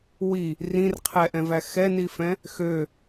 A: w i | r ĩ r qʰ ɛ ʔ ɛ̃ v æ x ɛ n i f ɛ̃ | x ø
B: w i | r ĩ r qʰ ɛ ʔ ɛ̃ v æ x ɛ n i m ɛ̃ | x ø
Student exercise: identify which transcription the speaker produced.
A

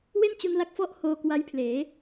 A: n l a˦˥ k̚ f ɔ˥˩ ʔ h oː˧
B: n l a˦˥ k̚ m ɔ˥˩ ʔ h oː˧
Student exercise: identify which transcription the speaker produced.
A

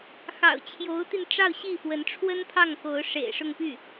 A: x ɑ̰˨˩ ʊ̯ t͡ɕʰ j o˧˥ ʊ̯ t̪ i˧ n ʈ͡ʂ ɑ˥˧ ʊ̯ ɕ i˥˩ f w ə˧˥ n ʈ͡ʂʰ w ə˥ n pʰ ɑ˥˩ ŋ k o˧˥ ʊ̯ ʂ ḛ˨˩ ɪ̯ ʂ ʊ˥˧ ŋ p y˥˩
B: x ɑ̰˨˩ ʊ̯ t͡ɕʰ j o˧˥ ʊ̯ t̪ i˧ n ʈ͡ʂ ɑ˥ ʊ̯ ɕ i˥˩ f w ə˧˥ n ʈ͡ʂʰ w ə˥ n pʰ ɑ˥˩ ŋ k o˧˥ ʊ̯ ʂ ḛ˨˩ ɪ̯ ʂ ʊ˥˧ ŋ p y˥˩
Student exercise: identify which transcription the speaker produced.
A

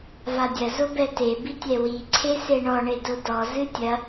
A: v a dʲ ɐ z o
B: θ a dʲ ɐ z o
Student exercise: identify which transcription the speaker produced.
A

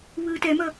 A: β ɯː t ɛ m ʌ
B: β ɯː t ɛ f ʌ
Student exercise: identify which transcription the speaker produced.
A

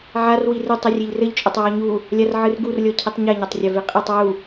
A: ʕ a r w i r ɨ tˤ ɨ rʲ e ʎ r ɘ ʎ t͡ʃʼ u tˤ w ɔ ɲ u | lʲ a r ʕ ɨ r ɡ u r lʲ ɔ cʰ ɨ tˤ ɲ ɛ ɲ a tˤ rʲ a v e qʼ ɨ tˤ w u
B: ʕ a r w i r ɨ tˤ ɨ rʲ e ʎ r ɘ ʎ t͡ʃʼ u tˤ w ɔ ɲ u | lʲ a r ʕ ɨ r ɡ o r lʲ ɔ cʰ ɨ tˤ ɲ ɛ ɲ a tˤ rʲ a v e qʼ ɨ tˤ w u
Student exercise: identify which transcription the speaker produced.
A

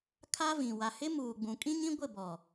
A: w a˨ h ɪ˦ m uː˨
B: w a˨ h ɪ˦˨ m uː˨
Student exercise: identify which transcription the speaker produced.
A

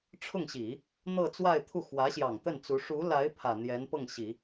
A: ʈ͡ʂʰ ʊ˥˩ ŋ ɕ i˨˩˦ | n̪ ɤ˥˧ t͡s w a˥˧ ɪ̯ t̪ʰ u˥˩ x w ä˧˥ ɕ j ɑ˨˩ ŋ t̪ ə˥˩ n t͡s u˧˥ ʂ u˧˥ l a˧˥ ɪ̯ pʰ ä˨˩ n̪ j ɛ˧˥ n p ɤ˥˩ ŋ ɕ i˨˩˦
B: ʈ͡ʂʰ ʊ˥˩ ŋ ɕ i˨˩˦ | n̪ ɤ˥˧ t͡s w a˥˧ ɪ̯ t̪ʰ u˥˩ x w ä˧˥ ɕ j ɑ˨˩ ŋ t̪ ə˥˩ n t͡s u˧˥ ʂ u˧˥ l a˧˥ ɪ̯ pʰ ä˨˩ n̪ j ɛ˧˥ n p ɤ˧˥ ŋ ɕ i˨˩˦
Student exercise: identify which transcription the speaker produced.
A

